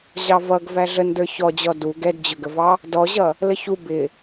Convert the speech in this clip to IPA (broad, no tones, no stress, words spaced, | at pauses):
ʑɑvʌɡ væɮəndə˞ çɔd͡ʑɔ du ɡɛdd͡ʑʊɡəvɑ | dɔʑʌ | ləçu bɪ